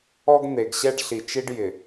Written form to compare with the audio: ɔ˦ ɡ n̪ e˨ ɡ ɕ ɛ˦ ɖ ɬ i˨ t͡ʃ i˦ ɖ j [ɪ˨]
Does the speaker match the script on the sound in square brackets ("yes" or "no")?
yes